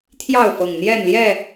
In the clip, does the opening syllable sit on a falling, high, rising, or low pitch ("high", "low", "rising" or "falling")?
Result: falling